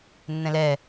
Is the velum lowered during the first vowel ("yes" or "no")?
yes